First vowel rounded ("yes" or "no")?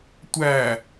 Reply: no